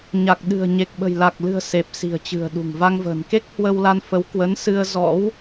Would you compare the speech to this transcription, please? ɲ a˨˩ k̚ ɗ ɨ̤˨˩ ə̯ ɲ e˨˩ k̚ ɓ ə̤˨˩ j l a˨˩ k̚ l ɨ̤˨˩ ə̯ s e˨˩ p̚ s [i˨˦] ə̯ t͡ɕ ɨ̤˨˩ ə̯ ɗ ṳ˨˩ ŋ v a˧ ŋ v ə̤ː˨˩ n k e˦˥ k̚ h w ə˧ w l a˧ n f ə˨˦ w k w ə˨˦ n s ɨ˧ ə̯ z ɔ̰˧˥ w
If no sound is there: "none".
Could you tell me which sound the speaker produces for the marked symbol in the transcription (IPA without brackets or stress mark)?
i̤˨˩